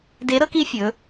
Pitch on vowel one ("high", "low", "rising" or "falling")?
rising